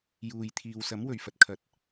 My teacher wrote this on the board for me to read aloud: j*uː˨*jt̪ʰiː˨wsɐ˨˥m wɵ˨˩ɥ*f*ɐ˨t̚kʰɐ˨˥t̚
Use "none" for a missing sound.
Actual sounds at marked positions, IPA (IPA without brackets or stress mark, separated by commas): uː˨, f